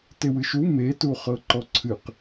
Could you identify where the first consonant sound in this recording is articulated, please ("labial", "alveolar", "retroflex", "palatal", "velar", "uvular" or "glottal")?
alveolar